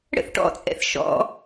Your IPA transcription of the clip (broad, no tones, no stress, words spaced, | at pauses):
ɽə̰θʈɔ̰t͡sʼɛ̰θ ʃɔ̰